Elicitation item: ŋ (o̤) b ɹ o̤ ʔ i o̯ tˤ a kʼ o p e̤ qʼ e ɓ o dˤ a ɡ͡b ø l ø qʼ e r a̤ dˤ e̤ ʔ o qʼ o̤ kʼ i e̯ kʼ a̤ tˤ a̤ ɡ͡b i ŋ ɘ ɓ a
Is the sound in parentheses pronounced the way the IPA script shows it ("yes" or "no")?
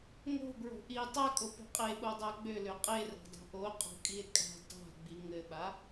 yes